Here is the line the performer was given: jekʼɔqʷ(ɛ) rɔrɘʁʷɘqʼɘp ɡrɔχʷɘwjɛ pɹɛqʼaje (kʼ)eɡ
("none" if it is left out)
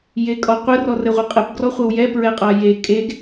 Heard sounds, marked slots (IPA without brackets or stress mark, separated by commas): ɘ, kʼ